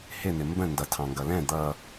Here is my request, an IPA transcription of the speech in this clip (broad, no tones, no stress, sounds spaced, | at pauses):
h ɪ n̪ ɪ m b ə̃ n d ʌ tʰ ɑ̃ ŋ ɡ ʌ l ɛ̃ d̪ ʌ